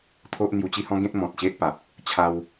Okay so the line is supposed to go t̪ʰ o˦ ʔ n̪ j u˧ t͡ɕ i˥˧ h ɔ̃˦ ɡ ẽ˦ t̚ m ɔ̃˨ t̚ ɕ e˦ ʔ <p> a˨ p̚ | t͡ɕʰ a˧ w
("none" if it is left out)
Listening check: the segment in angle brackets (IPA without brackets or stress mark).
p